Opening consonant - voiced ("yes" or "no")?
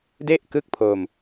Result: yes